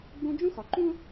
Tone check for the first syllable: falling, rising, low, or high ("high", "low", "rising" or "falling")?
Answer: high